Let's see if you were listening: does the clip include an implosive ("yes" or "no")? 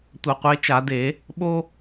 yes